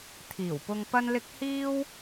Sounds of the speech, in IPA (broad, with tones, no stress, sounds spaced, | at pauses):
t̪ʰ iː˨˩ w p ʊ˧ ŋ p ɐ˥ n l ɪ˥ k̚ h iː˥ w